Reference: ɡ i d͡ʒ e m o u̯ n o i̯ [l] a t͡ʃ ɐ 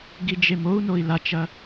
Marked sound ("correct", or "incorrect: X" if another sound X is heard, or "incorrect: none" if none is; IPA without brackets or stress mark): correct